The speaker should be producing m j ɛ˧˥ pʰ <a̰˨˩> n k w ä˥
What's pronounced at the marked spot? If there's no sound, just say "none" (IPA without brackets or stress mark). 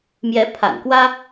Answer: a̰˨˩